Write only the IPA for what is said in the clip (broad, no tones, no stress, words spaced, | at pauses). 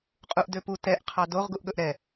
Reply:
qʼuʔdøpu tɛʔ qʰɑdoʁ ɡuʔɠɵʔɾɛ